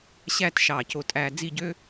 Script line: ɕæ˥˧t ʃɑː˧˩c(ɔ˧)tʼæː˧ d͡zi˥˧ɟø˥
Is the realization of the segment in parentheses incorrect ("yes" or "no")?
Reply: yes